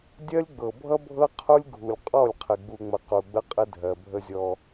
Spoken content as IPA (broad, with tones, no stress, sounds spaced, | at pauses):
dʲ ɜ˦ lʲ ɡ͡b ɤ˨ bʱ ʌ˦ bʱ ɤ˦ qʰ u˦ lʲ ɡʱ u˨ lʲ qʼ ɔ˦˨ lʲ qʰ ɪ˨ ɡ͡b u˨ ŋ͡m ə˨ q u˨ ɡ͡b ə˦ qʼ ɪ˦ dʱ ɜ˨ bʱ ə˦ zʲ ɔ˦